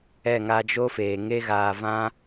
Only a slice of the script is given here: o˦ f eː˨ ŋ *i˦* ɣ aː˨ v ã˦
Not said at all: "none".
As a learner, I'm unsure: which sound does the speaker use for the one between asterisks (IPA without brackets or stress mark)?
e˦